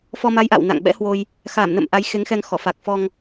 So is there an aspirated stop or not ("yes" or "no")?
no